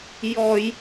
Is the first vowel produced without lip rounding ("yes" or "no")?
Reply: no